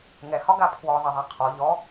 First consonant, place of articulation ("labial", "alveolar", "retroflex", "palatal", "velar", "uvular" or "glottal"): velar